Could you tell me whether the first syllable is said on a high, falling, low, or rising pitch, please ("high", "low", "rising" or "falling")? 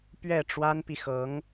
falling